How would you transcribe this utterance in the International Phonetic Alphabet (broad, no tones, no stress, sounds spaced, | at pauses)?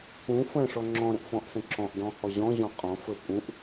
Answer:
k ũ f ə̃ ʂ ɔ ŋ͡ǁ ɔ̃ ɾ ə̃ ʔ f ɔ̃ ʔ s ə̃ ǁ ɔ̃ ʔ d ɔ̃ h ɔ ʑ ɔ̃ ʑ ɔ̃ qʼ ɔ̃ f ə pʼ ũ ʔ